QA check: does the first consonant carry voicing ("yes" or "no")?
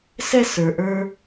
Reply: no